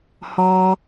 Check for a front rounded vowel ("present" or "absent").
absent